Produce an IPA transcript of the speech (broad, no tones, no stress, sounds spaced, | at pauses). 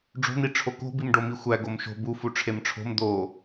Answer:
ɖ͡ʐ o̤ n̪ i ʈ͡ʂʰ o k o̤ b i m ɖ o m i xʷ æ ɡ o m ʃ o̤ b u f u ʈ͡ʂʰ e m ʈ͡ʂʰ o̤ m d̪ o